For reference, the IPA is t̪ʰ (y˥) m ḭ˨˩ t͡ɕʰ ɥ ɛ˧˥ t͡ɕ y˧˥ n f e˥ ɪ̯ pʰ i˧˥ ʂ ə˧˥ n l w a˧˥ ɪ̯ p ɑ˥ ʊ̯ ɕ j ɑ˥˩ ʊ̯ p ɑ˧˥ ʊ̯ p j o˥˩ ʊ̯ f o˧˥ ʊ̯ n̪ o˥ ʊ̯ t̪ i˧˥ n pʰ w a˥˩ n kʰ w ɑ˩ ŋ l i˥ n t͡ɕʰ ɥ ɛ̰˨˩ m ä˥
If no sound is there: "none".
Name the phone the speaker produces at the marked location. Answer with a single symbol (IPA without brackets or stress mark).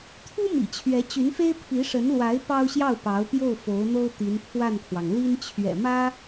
u˥